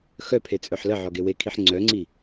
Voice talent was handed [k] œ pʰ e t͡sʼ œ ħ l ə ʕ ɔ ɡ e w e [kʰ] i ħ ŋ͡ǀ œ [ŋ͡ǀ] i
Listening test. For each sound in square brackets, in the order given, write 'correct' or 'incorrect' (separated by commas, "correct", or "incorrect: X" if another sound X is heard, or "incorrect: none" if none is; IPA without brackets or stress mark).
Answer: incorrect: x, correct, correct